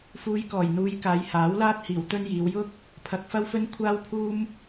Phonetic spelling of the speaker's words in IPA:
f uː˧ j k ɔː˨˩ j n̪ uː˨˧ j k aː˨˧ j h aː˨˥ w l aː˥ t̚ h iː˨˩ w t̪ ɵ˥ n j iː˨˧ w j ʊ˥ k̚ | pʰ ɐ˧ k̚ f ɐ˥ w f ɵ˥ n kʷʰ aː˥ w pʰ uː˥ m

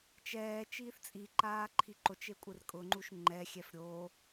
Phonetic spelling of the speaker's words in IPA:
t͡ʃ ɛː t͡ʃ iː θ t͡sʼ i ǃ aː ǃʰ i ǃ o t͡ʃ e kʷʼ ɪ r kʼ ʊ ŋ͡ǃ u ʃ ŋ͡ǃ ɛ xʲ ɛ f ɾʲ o

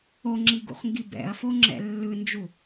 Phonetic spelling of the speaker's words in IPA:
o ŋ͡ǁ i ɡ ṵ χ ŋ ɡ i b ɛ̰ ɐ̯ f o ŋ͡ǁ ɛ̰ lː ɯ n d͡ʒ u

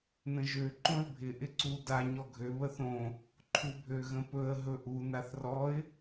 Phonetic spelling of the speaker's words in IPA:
n ə̃ ʒ ø ǃ õ ɪ̯ bʱ ɪ ʔ ɪ ǀ u d a ɲ ɔ ɡʱ ø β ə θ õ | ǃʰ u bʱ ø ɣ ə̃ p ɵ ə̯ ɦ ɵ ʔ u n a θ r ɔ ɪ̯

